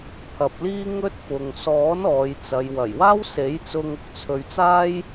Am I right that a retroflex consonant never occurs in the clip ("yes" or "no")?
yes